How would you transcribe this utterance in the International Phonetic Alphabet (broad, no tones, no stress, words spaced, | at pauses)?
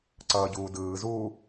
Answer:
ǀʌːɟuːdɯːzuː